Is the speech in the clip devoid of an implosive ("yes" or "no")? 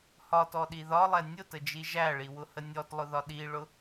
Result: no